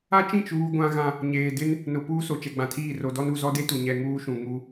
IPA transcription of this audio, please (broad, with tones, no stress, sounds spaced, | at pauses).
a˦ t͡ʃ ĩ˦˨ t͡ʃ uː˦ ɡʷ ã˦ ɣ ã˦ | ɲ eː˨ d ɪ˦ n | n ʊ˨ p uː˦ s o˨ t͡ʃ ɛ˨ ɡ͡b ã˨ tʰ iː˦˨ r o˨ d ɔ˦ n u˨ z ɔ˦ d e˦ t u˨ ɲ ɛ˨ ŋ uː˦ ʃ ũ˨ ŋ u˦